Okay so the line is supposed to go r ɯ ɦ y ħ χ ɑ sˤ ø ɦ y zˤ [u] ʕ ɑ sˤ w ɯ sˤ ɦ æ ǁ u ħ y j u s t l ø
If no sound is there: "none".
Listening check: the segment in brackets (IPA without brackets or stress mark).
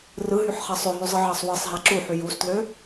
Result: ɯ